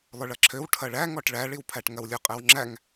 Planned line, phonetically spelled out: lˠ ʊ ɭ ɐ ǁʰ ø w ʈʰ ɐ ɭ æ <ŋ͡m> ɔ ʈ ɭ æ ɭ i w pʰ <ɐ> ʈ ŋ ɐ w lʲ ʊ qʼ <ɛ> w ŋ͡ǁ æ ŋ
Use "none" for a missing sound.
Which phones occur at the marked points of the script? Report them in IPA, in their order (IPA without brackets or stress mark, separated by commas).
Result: ŋ, æ, ɛ